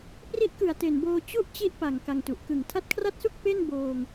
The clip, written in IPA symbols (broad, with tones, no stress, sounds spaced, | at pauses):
p r i˦˥ ʔ k ɯ˨˩ a̯ t e˨˩ n b oː˧ t͡ɕ u˥˩ ʔ t͡ɕ i˥˩ ʔ p a˨˩ ŋ k a˧ ŋ t u˨˩ ʔ k ɯ˨˩ ŋ tʰ a˦˥ t̚ kʰ r a˥˩ t̚ s u˥˩ k̚ p e˥˩ n b oː˧ ŋ